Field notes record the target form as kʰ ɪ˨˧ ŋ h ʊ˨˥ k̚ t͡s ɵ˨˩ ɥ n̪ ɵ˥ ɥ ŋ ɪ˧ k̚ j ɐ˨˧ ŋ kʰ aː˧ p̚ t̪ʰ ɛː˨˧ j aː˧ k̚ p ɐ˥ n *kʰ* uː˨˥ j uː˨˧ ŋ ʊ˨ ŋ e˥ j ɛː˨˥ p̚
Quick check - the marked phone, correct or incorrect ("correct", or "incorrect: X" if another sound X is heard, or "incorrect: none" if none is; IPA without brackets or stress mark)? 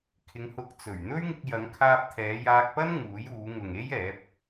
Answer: incorrect: ŋ